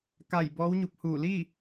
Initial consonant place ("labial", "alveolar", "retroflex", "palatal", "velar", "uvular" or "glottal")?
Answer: velar